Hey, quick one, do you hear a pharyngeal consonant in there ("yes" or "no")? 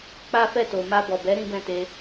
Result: no